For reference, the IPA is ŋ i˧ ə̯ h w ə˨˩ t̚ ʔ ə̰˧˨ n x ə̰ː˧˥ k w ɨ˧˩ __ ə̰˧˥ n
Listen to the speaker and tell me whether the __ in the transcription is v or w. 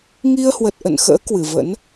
v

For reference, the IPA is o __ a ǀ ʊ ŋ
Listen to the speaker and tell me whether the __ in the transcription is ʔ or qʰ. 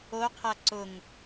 qʰ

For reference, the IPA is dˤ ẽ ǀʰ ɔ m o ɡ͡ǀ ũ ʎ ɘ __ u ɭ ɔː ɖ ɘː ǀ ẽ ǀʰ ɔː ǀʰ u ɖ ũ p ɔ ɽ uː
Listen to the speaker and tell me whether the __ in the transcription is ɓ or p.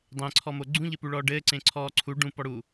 p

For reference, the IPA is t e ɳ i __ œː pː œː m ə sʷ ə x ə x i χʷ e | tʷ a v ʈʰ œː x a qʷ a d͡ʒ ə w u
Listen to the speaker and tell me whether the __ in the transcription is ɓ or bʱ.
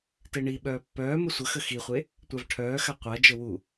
ɓ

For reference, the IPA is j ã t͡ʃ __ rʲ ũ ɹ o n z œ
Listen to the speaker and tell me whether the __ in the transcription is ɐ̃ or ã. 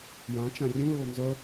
ã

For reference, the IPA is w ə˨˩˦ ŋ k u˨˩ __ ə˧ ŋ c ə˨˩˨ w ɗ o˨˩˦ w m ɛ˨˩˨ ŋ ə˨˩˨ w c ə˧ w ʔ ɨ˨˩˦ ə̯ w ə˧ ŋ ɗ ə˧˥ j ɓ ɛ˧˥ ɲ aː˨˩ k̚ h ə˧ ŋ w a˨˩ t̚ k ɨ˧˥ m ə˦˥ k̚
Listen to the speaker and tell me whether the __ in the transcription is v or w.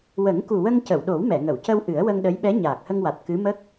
w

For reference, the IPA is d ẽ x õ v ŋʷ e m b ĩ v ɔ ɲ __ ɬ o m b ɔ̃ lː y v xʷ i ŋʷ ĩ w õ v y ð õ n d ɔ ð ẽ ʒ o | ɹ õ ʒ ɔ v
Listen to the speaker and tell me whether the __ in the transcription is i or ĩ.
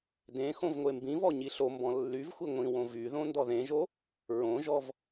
i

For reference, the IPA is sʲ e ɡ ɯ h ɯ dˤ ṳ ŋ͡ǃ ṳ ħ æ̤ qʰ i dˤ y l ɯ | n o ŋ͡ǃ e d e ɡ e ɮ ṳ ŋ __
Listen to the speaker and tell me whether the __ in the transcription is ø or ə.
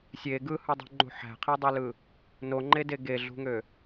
ø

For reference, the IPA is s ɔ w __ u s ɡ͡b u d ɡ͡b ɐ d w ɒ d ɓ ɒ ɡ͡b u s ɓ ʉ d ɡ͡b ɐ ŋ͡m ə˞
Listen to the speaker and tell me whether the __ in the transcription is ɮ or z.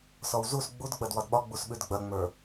z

